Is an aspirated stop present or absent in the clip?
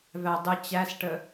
absent